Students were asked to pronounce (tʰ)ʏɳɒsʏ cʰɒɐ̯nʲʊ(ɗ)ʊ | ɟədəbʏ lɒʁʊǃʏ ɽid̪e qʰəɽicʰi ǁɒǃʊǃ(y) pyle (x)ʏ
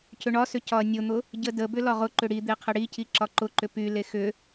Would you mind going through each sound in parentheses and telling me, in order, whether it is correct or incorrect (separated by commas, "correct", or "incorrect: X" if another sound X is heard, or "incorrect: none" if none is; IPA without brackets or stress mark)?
incorrect: cʰ, incorrect: n̪, incorrect: ʏ, correct